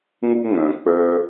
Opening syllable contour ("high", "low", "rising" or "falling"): high